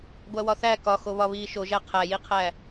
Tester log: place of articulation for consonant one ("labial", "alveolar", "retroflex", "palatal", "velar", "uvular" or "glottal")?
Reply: velar